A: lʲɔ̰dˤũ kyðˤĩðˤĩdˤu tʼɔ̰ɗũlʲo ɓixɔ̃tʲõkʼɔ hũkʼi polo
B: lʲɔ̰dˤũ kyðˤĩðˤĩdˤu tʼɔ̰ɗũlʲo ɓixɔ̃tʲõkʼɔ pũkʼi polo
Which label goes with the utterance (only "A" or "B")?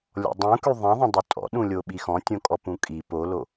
B